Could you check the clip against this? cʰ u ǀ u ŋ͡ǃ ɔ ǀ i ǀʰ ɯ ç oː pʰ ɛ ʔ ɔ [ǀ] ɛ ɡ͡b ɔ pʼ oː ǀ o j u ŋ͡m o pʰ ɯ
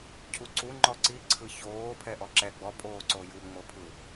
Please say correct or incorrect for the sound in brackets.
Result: incorrect